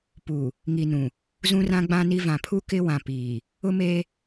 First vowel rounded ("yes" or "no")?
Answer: yes